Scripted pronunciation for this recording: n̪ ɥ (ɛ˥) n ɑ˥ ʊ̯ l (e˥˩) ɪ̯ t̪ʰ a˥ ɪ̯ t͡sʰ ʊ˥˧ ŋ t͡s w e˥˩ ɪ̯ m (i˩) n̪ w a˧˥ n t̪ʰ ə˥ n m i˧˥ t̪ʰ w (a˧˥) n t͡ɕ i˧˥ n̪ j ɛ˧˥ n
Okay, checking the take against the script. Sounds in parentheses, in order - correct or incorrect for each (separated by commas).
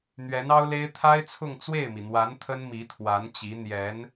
incorrect, incorrect, correct, correct